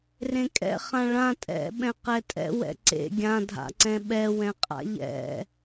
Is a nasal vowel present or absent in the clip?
present